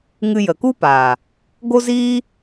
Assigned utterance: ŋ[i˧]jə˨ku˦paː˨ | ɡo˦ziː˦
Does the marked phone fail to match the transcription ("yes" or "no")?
yes